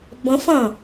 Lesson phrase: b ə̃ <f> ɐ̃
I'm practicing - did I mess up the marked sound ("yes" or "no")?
no